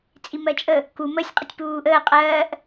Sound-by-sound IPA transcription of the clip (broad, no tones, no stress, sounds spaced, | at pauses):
t͡sʼ i m ɜ t͡ʃʼ ə | k u m ə sʲ qʼ ə tʲ p uː ʔ əː qʼ ɜː ʔ